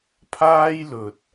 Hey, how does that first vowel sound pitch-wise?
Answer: high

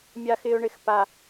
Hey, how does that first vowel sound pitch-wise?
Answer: high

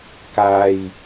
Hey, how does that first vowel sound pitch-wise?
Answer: low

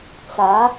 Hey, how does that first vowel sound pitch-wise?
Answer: rising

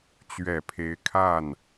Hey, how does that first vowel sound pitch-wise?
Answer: low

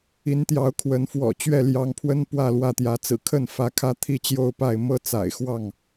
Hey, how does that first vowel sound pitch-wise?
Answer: rising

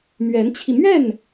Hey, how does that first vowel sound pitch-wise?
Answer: rising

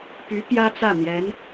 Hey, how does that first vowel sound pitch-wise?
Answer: rising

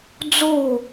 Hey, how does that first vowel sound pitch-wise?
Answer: falling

